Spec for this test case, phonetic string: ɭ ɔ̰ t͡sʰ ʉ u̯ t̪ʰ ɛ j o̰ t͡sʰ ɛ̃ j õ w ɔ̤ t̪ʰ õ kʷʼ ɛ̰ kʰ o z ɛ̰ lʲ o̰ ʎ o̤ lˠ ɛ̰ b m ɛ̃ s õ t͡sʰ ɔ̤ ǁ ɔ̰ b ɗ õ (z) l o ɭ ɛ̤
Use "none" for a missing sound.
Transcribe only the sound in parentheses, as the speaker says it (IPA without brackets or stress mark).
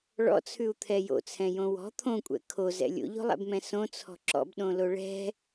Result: none